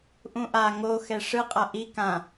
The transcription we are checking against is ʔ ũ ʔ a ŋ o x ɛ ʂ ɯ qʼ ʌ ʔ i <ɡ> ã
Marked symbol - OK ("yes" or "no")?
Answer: no